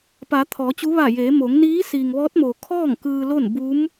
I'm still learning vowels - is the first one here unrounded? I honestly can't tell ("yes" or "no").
yes